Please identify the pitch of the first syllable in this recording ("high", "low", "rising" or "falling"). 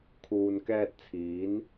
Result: low